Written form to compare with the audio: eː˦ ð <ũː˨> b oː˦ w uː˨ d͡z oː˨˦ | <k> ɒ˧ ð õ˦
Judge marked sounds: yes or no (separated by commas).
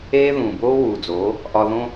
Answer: yes, no